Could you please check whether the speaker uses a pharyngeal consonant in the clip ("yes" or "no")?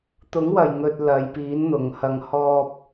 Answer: no